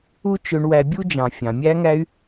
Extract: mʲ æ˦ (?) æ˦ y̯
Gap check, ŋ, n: ŋ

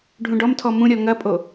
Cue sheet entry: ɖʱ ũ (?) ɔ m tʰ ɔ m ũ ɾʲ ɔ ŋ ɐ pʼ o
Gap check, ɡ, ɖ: ɖ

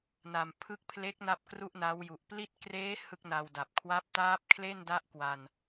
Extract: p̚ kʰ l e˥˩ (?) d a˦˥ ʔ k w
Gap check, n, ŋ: n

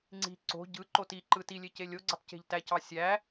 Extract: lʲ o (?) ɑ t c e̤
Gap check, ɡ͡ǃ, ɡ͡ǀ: ɡ͡ǀ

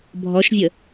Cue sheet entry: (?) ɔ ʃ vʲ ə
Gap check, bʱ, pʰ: bʱ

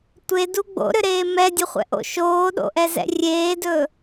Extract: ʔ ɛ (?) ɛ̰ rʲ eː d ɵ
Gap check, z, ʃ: z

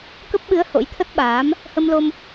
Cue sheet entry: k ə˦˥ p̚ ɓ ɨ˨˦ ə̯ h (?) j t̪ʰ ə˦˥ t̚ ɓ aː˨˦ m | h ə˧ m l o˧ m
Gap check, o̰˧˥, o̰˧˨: o̰˧˥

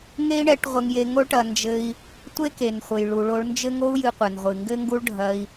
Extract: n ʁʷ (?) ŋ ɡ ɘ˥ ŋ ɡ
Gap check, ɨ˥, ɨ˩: ɨ˩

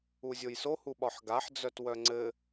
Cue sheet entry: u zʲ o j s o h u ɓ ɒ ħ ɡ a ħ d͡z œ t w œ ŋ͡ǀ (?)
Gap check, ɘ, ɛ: ɘ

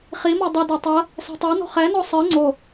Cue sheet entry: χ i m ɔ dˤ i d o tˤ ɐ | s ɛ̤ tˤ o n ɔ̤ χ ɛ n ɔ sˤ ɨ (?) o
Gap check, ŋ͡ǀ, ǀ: ŋ͡ǀ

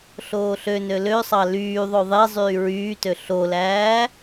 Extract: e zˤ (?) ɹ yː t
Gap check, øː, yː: yː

